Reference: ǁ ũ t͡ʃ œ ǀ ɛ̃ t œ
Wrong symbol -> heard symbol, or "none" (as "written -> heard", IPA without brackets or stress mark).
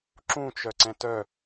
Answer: none